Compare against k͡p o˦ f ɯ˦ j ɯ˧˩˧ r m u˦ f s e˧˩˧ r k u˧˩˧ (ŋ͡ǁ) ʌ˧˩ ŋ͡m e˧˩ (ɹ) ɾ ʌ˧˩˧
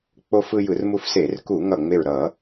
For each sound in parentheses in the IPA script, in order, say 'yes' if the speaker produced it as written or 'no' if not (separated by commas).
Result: no, yes